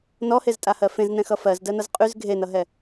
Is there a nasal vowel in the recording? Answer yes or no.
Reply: yes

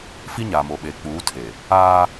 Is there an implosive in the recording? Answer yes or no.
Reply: yes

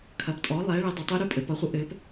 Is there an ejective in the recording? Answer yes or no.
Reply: yes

